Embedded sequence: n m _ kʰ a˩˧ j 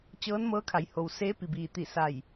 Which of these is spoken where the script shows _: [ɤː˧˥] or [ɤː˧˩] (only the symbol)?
ɤː˧˥